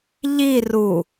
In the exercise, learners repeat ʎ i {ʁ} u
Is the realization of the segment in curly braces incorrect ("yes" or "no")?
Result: yes